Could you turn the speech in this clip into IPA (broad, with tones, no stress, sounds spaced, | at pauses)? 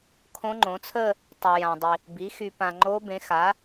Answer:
kʰ õ˧˥ ŋ͡ǃ õ˩˥ t͡sʰ ə˥˧ | tˤ y˨ j ã˨ dˤ i˨ | b i˩˥ x y˨ p ã˨ ŋ͡ǃ o˧˥ b ẽ˩˥ x a˩˥